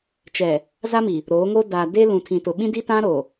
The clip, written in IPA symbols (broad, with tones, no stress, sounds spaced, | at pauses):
t͡ʃ ɛ˨ | z a˦ m i˨ | ɾ oː˨˦ ŋ oː˦ d aː˨ d e˦ l ũ˨ tʰ ĩ˨ t ʊ˨ ɓ ĩ˦ d i˦ t ã˦ ɾ oː˨